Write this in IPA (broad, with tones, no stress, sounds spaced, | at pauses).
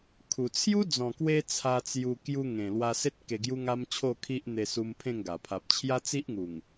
kʰ u˨˩ t͡sʰ j u˦ d͡z ɔ̃˨˩ k w e˧ t͡sʰ a˧ t͡s j u˧ k j u˧ ŋ ẽ˨˩ l w a˧ s e˦ t̚ k e˧ ɡ j u˦ ŋ a˦ m t͡ɕʰ o˥˧ kʰ i˦ ʔ n̪ e˧ s u˧ m pʰ ẽ˥˧ ŋ ɡ a˨˩ pʰ a˨ p̚ t͡ɕʰ j a˦ t͡s i˦ ʔ ŋ u˨˩ ŋ